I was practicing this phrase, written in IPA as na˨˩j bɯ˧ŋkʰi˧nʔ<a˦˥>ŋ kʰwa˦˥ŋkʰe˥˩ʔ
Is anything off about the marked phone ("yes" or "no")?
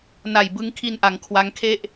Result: yes